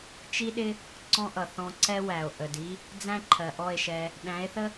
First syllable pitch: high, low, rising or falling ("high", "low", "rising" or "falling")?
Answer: high